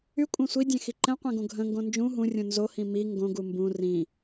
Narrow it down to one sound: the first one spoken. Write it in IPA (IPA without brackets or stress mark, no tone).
y